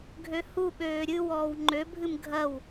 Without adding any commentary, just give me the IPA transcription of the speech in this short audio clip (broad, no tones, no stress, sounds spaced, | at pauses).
ɡʱ ø h u ɓ øː ɾʲ ɨ w ɔː w ŋ͡ǃ ø bʱ ɨ m ɡʱ ɐ w